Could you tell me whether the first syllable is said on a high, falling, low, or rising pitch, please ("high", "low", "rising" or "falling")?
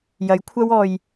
rising